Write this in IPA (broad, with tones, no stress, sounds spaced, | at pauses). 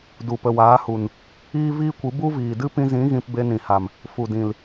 d u˨ p ə˨ w aː˨˦ h u˨ n | iː˦ v iː˦ kʷ ɨ˨˦ b u˦ v iː˨ d ɨ˦ p ĩ˧ z ĩ˨˦ ɣ ĩ˧ p b e˧ n ĩ˨ h a˨ m | f u˨ d ĩ˨ l